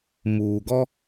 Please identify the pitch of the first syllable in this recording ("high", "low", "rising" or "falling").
low